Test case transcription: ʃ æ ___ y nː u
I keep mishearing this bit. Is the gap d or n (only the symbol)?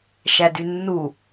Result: d